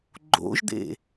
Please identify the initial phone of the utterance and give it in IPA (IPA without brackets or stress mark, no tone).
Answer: ɡ͡ǃ